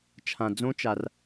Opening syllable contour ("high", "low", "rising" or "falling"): low